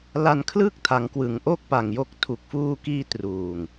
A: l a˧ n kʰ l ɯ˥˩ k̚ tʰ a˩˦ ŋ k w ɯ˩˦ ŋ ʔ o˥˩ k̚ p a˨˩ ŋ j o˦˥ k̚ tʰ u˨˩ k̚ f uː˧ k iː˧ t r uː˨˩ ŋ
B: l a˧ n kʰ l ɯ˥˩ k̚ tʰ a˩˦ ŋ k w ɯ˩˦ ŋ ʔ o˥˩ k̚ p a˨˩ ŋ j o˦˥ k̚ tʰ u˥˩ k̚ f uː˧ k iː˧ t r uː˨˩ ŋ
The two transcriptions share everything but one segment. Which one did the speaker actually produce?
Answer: A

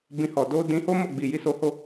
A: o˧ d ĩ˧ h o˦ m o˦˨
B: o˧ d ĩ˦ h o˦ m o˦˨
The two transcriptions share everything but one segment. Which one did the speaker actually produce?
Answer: A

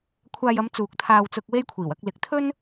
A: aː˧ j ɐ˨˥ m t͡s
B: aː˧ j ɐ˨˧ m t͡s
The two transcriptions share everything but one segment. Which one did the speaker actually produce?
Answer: B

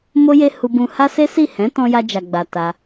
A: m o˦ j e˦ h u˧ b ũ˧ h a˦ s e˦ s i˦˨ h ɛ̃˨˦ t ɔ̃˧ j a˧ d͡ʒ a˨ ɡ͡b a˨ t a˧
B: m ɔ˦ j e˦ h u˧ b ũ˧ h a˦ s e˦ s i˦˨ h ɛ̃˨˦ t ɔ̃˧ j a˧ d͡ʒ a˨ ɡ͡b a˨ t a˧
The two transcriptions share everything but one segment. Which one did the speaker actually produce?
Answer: A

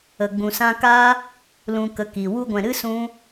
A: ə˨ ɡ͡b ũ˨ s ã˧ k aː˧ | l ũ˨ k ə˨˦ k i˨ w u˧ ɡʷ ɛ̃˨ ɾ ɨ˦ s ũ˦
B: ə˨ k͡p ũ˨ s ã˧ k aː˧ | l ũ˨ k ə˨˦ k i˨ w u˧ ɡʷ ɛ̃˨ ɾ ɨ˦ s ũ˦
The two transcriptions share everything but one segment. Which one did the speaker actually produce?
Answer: A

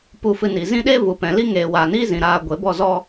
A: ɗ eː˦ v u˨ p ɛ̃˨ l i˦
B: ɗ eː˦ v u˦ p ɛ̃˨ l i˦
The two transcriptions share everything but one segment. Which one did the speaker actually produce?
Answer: A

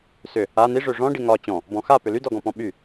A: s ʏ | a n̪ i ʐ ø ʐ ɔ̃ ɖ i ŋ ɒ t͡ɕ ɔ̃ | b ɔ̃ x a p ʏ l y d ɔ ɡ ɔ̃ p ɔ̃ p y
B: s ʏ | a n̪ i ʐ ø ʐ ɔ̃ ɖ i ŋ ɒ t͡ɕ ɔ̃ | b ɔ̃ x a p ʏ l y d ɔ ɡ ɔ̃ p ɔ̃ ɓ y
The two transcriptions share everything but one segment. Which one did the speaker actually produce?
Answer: B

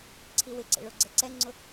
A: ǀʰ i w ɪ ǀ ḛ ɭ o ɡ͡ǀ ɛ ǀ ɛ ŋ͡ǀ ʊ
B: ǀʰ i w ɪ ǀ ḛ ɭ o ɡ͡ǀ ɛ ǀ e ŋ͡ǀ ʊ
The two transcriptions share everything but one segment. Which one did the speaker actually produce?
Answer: A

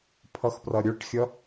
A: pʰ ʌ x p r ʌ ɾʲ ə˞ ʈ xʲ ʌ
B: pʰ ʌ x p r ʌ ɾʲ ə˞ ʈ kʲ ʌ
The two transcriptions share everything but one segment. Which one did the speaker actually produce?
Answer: A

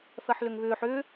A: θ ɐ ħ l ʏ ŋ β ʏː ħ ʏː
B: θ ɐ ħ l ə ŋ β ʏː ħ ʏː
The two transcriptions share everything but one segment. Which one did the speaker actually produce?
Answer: A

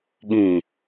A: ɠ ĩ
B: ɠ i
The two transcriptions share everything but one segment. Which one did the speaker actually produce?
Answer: A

